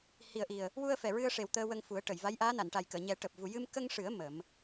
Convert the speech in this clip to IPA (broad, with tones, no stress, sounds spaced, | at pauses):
h i˨˩ ə̯ ʔ i˨˩ ə̯ | w u˧ ə̯ f ɛ˨˩ ɹ ɨ˧ ə̯ ʂ e˨˩ w t̪ əː˧ w ə˧ ŋ f u˨˩˦ ə̯ ʈ ə˨˩˨ j v a˧˥ j ʔ aː˧˥ n a˨˩˨ n ʈ a˨˩ j k əː˨˩˨ ɲ ɛ˨˩˦ ʈ əː˨˩ p̚ v u˨˩ j ɨ˧ m k ə˧ ŋ ʂ ɨ˨˩˦ ə̯ m ə˨˩˦ m